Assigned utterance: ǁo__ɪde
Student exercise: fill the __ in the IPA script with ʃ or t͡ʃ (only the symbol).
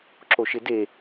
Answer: ʃ